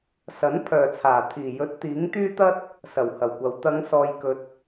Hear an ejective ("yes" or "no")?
no